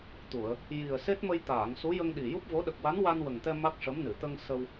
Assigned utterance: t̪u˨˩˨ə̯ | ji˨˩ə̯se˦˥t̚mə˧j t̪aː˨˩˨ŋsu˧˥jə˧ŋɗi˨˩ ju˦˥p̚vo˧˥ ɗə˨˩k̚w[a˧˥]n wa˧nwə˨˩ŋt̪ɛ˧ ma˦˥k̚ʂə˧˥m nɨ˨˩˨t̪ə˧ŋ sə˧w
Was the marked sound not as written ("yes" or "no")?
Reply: no